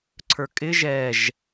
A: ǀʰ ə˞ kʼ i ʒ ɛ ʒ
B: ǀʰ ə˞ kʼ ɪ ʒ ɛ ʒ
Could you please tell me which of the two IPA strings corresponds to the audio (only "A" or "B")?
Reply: B